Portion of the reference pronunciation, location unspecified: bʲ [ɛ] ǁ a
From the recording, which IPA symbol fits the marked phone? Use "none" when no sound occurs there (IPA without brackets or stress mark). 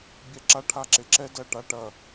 ɛ